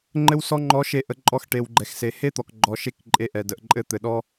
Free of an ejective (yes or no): no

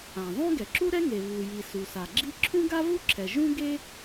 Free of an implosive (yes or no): yes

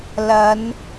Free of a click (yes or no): yes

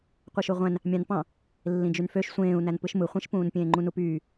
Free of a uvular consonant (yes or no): no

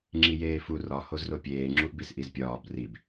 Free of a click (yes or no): no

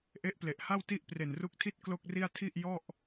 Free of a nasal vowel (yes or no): yes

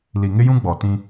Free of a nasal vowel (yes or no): no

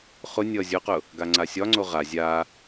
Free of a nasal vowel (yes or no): yes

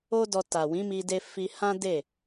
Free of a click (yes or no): yes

